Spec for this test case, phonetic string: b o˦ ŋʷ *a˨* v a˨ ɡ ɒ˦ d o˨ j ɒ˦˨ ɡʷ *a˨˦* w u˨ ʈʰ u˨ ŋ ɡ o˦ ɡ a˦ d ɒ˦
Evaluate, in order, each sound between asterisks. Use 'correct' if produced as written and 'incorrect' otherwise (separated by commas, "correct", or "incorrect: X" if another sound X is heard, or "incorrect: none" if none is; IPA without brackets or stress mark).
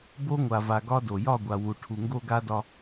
correct, incorrect: a˨